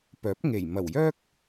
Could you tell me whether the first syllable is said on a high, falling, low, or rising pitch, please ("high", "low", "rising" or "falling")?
rising